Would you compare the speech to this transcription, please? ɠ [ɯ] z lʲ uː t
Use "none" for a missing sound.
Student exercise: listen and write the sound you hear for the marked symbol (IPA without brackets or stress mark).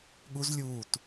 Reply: u